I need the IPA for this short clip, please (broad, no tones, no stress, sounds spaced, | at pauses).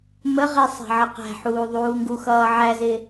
m ə ʁ i sˤ æ̤ ʕ ə q æ̤ ħ uː ðˤ uː ŋ ɡ u x ʌː ʕ æ z ɪ